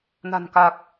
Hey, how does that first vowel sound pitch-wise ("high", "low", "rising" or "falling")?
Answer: low